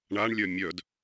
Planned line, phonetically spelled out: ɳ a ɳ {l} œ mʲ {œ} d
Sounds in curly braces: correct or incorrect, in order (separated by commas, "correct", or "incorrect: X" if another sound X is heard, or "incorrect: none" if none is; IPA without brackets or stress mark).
incorrect: lʲ, correct